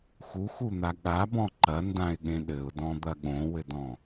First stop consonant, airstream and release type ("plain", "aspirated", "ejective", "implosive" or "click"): implosive